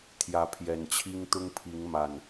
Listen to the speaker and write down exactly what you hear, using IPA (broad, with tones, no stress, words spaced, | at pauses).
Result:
t̪ʰjä˨˦pʰjɛ˨˩nt͡ɕʰi˦ŋ t̪ʊ˦ŋpʰi˨˦ŋ ma˨˩n